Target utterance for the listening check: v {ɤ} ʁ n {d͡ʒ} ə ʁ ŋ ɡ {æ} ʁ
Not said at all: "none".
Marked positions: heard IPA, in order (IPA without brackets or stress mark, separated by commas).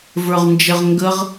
ə˞, d͡ʒ, ə